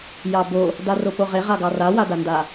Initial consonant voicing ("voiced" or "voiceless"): voiced